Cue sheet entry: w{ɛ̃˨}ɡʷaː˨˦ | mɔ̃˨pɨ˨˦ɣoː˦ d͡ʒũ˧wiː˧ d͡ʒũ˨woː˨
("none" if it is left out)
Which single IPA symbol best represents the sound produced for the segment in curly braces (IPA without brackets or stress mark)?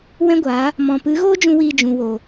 ɛ̃˦